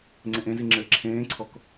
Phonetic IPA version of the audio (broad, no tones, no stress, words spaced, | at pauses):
ŋ͡ǀẽʔẽzi ŋ͡ǁɘːǁʰẽːǀʰɔk